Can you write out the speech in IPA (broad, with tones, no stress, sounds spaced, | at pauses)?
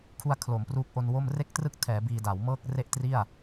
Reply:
kʰ u˧ a̯ kʰ l o˩˦ m p r uː˦˥ k̚ ʔ o˧ n w o˥˩ m r e˥˩ k̚ t r ɯ˥˩ k̚ tʰ ɛː˩˦ b iː˧ d a˩˦ w m ɤː˥˩ k̚ r e˥˩ ʔ t r i˥˩ a̯